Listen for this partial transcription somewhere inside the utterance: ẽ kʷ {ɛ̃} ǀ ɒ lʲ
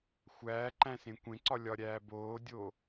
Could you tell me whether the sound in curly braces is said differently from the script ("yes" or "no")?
yes